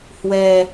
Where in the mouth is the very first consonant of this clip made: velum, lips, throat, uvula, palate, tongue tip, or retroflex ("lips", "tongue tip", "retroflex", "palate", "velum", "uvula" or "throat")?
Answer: throat